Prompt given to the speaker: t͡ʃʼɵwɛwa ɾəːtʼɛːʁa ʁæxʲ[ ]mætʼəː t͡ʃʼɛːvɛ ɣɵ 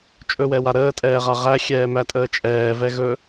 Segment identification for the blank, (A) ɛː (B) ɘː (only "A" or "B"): A